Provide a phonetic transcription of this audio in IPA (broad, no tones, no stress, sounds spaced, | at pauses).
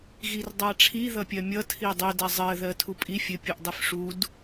ɣ i r dˤ a ʈ͡ʂʰ i ð ʌ pʲ ɜ mʲ ʌ tʰ i dˤ ɘ d a zˤ ɜ ð ɜ tʰ u pʼ i fʲ ɘ pʲ u ʔ dˤ i f ʂ u d